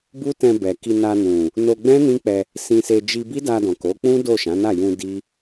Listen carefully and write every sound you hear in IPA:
b u˦ t ɛ̃˧ b ɛ˨ k i˧ n a˧ n ũ˨ | n o˧ ɡ͡b ɛ̃˦ n ĩ˦ k͡p ɛ˧ | s ĩ˧ s e˧ d͡ʒ i˧ b i˦ d a˧ d ɔ̃˨ k o˨˦ k͡p ũ˦ d o˦˨ ʃ ã˨˦ n a˦˨ j ũ˧ d i˦

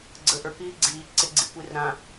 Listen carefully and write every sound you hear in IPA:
ɡ͡ǀ ə ʔ ə˞ k iː ɡ͡ǀ iː ǀ ɪ ɡ͡ǀ i kʷ i r ɾ ã

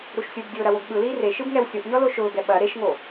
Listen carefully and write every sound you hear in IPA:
ɾ u ʃ sʲ u b dʲ ʊː ɾ ɐ w o ɡ ɓ ɯ l iː r e ʃ ɯ b ŋ ɛ w sʲ o ʔ ɲ ɔ l o ʃ ʊː ɡ ɛ ɓ ɐ ɾ e ʃ ŋ o

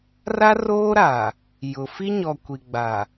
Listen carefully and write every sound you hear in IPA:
r a˦ r oː˦ ɾ a˨ | j ʊ˨ f i˦ ɲ ɔ˨ kʷ i˨ ɡ͡b a˨

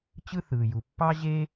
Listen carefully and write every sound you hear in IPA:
t͡ɕ ɯ˥ θ ɯː˩ j u˩ pː ɑ˥ ʑ e˥

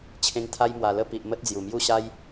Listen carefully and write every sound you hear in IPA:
t͡ɕʰ ẽ˧ ŋ t̪ʰ a˦ j m w a˨˩ l ə˥˧ p i˨ ʔ m ə˦ t̚ d͡z j u˨˩ m j u˥˧ ɕ a˦ j

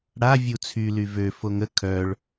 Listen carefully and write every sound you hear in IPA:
ɽ a vʲ u t͡sʰ y l y v ø f o ŋ ə kʰ œ ɭ

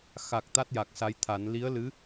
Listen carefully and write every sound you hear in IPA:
x a˨˩ k̚ t̪ a˦˥ t̚ j a˨˩ k̚ s a˧˥ j t̪ʰ a˨˩˦ n l i˧˥ ə̯ l ɨ˧˥

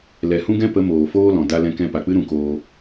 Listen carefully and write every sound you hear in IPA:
l ɛ˨ h ũ˦ ɡ ɛ̃˦ p ə˨˦ m oː˨ f oː˦ l ɔ̃˨ d a˦ l ɛ̃˧ k ɛ̃˧ p a˨ k͡p ɨ˦ ɾ ũ˧ k oː˧

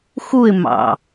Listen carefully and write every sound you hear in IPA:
x u ɪ̯ m ɑ̰

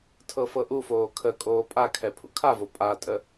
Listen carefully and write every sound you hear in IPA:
tʰ ɤ f ɤ ʔ u f oː kʰ ə kʼ oː pʼ a kʰ ɛ pʰ ṵ kʰ a v o pʼ a tʼ ə

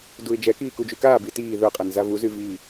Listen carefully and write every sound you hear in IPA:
d u ɪ̯ d͡ʒ ɛ k iː k u d͡ʒ y k aː b i t iː ð ɵ qʼ ɛ n z a v u z y v iː

